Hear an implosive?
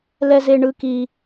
no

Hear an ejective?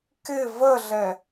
no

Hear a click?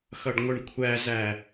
no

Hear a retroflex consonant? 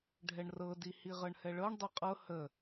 yes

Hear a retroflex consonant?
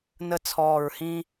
no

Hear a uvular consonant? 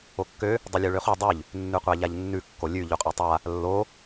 yes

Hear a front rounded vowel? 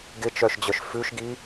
yes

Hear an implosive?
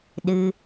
yes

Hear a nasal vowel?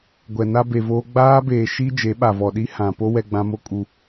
yes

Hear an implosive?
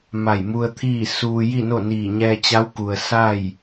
no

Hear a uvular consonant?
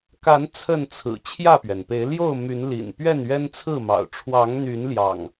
no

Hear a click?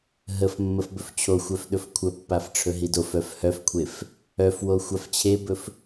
no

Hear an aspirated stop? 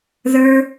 no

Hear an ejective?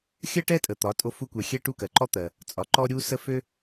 yes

